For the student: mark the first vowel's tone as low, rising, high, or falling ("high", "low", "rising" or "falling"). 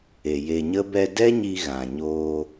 low